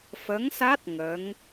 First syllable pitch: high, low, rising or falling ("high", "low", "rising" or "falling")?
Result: rising